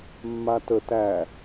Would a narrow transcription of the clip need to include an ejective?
no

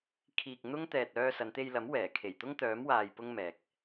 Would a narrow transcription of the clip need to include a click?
no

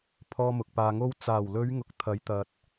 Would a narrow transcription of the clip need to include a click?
no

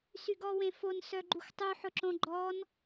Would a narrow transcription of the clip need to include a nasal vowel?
yes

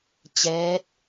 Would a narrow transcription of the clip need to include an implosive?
no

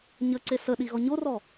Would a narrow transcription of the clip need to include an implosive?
yes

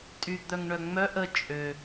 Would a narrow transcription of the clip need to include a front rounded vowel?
yes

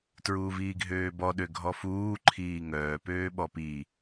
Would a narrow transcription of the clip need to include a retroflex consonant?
no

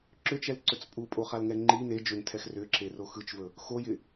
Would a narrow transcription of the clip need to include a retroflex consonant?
no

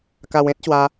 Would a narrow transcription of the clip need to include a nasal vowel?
yes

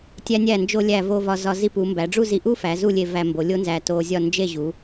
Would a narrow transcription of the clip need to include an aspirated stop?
no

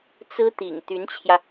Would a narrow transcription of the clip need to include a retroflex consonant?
no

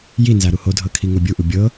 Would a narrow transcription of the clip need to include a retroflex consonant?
no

